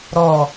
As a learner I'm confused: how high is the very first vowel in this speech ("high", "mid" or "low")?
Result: mid